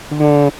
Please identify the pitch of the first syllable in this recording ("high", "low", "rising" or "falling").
high